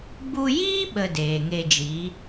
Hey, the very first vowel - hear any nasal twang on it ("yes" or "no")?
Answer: no